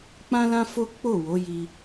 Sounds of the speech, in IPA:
k͡p ã˦ l ã˦ f o˦ k͡p o˦˨ w o˨˦ j i˧

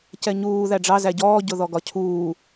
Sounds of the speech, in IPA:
c ɛ ɲ uː ð æ ɖ͡ʐ ɑ z æ ɟ ɔː ɟ ʊ ð ɔ ɡ ɒ cʰ uː

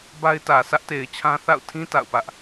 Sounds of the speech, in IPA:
b a˦ ɪ̯ t ä˨ s ä˦ ʔ t e˨ ɪ̯ t͡ɕʰ ã˦ θ a̰˦˨ ʊ̯ tʰ ĩ˦ t a̰˦˨ ʊ̯ p ä˦ ʔ

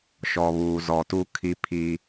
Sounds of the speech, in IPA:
ʃ ɔ˨ β uː˨ z ɔ˨ t u˦ kʰ i˦ pʰ i˦

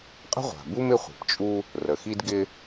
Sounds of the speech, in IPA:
qʼ ə̤˥ ʁʷ a̤˩ b u˥ m ɪ˥ χʷ i̤˩ p t͡ʃʼ u˥ | r ə˩ x i˥ d ɡ ɪ˥

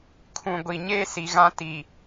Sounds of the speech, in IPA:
kʰ ũ˨ ɡʷ i˨ ɲ eː˦ s i˨ ɣ ã˦ t i˨

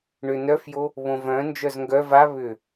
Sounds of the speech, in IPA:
ɳ ʏ n œ f j o | β õ v œ̃ n d͡ʒ œ z ŋ ɡ œ v a β ʏ

